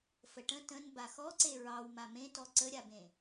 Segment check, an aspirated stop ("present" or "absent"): absent